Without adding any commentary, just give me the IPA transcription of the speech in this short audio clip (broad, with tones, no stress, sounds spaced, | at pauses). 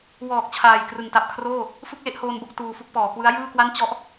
w ɔː˨˩ k̚ t͡ɕʰ aː˨˩ j k r ɯ˨˩ ŋ t a˨˩ p̚ kʰ r oː˥˩ | f ɯ˥˩ k̚ l e˥˩ ʔ h oː˧ n b o˥˩ k̚ t uː˧ f u˥˩ k̚ p ɔː˩˦ k w ɯ˦˥ a̯ j ɯː˥˩ k w a˥˩ n t͡ɕ ɔ˥˩ ʔ